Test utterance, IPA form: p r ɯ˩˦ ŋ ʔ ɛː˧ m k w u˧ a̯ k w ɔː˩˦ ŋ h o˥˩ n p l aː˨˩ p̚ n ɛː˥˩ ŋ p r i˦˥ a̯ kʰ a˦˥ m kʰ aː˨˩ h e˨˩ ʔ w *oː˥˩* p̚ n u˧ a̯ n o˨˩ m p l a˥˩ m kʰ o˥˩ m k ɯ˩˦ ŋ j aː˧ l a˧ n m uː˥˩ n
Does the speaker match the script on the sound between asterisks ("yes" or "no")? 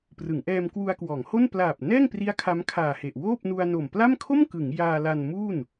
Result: yes